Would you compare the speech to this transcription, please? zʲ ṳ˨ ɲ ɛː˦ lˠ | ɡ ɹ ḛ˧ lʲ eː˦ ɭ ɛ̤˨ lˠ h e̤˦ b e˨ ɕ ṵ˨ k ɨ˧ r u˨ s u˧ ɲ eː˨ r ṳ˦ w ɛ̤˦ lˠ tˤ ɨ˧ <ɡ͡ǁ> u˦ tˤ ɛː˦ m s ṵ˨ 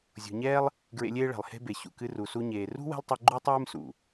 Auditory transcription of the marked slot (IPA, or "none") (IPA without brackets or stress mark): ɡ͡ǃ